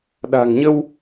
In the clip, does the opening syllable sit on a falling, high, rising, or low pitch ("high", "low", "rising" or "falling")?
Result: low